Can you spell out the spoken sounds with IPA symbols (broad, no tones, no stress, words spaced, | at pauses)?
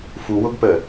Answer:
fuwʊɡpə